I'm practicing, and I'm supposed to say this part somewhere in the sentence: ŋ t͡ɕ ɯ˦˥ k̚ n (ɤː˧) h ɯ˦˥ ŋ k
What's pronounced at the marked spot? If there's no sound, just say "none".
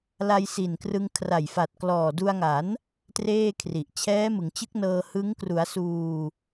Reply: ɤː˧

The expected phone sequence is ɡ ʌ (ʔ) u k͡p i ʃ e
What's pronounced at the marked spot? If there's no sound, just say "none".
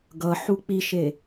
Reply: ħ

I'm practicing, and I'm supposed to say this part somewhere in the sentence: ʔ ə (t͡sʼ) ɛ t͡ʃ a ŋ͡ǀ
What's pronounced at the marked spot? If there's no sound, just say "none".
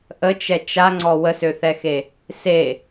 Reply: t͡ʃ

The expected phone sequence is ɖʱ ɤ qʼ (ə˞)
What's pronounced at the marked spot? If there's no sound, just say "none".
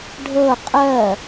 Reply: ɜ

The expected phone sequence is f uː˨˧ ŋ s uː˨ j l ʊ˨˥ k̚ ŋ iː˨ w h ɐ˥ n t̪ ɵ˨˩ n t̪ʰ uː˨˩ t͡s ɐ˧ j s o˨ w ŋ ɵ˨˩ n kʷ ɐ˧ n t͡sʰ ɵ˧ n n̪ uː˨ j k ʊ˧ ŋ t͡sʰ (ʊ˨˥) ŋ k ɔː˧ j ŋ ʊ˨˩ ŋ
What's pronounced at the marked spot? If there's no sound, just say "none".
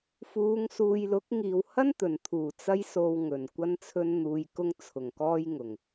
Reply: ʊ˨˩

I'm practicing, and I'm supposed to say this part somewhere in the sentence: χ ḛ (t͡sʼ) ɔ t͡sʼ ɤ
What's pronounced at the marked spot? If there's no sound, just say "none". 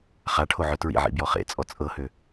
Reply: t͡sʼ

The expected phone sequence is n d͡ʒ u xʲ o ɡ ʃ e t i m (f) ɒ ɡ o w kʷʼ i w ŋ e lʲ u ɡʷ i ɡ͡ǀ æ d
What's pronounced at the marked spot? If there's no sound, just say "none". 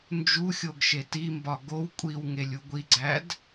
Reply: b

